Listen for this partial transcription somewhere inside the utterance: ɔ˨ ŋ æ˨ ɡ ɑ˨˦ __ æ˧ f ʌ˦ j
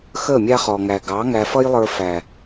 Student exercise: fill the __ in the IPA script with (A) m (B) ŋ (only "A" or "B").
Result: B